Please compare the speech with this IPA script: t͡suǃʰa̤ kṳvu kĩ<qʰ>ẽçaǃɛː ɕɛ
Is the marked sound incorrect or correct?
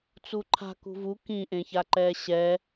incorrect: ʔ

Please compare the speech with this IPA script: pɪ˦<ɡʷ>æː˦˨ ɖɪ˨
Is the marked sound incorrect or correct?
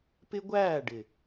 correct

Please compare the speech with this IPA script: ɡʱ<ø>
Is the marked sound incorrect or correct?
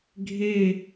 incorrect: e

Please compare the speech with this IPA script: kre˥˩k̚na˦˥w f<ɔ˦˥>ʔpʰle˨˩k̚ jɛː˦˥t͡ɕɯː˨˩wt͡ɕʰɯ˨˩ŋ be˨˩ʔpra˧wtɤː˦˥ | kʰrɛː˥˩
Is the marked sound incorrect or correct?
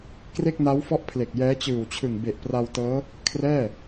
correct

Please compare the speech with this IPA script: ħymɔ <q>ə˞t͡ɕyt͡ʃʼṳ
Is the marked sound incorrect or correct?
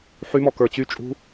incorrect: k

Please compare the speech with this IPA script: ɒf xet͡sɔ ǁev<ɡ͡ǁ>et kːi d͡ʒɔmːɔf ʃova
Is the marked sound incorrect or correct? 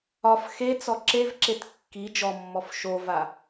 incorrect: ǁ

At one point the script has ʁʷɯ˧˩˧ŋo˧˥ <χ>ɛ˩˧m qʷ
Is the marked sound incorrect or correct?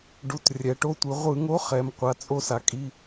correct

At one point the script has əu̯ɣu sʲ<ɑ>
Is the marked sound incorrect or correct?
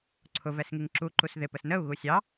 correct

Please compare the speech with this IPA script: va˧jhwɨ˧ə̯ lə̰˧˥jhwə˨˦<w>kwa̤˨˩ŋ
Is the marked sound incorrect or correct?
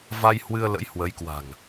incorrect: j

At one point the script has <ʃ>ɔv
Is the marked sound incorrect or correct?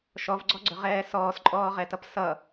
correct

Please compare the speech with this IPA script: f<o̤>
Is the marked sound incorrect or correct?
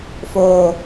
incorrect: o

